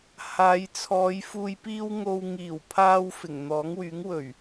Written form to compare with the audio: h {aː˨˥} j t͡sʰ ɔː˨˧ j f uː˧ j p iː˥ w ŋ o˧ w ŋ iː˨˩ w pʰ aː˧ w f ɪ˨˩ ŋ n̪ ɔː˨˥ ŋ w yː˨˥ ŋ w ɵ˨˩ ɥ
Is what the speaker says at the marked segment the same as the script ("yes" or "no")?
no